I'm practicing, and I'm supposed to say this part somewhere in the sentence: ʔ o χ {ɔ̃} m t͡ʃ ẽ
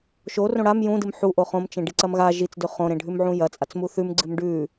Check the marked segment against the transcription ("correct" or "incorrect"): incorrect